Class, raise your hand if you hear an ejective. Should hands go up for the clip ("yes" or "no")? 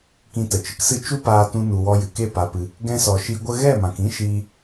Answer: no